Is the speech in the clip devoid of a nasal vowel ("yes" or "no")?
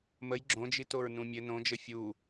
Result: no